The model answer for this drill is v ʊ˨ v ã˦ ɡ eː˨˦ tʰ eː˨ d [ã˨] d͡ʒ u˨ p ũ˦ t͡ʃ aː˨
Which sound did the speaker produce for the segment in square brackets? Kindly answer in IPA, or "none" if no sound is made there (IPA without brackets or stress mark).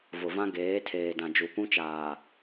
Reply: ã˨